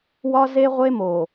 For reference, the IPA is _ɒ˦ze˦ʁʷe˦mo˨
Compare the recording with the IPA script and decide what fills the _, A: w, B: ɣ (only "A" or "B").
A